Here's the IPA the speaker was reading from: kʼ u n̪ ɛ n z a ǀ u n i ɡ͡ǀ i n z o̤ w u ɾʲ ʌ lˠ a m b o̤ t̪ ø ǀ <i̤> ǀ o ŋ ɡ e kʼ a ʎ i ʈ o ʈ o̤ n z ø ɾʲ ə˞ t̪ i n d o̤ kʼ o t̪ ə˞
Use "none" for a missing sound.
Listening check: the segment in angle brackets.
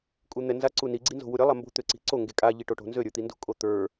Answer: i̤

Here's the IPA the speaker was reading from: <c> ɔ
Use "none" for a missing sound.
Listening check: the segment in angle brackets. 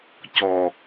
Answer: c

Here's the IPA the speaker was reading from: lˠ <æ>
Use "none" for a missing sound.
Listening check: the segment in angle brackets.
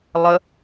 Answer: ə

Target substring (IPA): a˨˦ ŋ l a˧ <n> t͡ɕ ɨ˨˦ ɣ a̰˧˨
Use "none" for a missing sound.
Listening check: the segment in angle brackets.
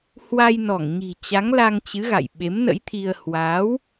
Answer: ŋ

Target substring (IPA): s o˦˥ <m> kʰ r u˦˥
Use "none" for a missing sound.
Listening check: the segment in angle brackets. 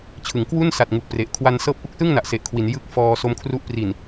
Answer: m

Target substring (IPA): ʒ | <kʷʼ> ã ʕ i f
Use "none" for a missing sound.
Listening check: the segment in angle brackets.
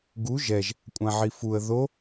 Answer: kʷʼ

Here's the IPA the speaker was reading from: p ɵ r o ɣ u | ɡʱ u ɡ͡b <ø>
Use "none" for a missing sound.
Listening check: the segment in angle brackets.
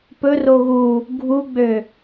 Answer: ø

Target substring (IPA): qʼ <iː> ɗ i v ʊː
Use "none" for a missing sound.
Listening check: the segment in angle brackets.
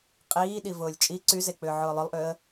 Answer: iː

